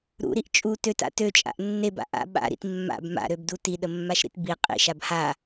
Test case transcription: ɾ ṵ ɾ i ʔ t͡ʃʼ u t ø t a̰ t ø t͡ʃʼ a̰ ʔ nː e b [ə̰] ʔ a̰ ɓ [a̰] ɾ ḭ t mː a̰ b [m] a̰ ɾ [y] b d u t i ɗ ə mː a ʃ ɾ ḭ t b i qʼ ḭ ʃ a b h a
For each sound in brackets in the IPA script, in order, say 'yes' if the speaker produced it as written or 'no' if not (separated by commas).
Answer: no, yes, yes, no